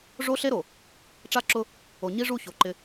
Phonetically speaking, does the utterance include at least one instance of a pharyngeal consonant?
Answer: no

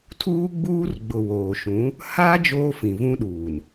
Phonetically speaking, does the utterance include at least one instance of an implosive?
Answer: yes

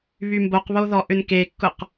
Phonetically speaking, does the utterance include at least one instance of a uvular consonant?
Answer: yes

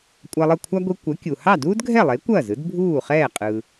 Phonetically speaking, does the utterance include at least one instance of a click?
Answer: no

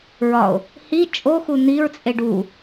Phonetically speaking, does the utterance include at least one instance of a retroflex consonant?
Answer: yes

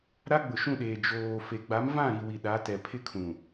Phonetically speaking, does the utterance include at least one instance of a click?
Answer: no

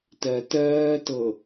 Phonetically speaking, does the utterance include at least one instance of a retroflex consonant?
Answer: no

